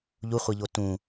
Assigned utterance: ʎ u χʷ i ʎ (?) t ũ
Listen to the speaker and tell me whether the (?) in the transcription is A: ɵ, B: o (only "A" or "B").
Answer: B